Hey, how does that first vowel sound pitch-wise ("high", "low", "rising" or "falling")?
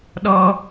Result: high